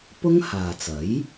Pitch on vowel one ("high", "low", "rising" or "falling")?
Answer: high